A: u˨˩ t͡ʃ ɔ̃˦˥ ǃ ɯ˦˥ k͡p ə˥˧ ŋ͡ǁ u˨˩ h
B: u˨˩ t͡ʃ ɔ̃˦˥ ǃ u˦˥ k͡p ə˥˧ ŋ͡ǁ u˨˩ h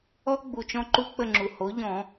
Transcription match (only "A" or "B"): B